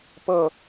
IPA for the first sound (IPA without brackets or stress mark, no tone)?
p